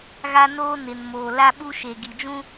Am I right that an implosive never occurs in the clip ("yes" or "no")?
no